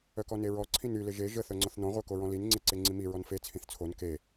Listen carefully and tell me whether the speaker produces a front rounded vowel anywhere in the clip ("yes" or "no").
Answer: yes